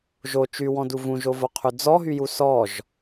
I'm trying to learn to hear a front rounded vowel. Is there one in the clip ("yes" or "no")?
yes